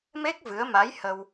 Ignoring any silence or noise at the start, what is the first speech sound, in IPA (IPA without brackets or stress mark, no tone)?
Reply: m